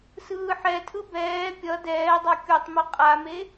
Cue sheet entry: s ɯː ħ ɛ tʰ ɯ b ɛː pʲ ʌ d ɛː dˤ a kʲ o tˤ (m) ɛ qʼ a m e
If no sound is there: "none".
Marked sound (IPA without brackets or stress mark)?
m